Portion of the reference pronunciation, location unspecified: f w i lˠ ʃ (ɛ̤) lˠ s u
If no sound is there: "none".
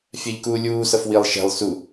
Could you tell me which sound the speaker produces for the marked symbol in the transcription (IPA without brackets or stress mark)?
ɛ̤